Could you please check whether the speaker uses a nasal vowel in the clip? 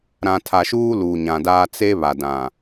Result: yes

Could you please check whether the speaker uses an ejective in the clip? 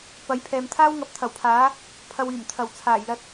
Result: no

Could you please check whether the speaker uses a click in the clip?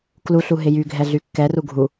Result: no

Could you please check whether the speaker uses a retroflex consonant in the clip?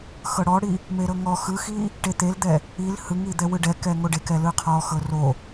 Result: yes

